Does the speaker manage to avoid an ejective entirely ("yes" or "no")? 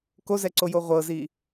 yes